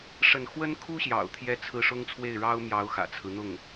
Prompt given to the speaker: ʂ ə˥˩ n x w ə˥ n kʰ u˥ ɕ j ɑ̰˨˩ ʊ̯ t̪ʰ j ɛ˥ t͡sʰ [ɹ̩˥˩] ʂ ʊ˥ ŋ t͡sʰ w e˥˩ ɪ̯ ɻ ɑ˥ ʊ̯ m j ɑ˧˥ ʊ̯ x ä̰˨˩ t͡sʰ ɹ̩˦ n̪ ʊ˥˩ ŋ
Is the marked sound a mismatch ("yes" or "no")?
no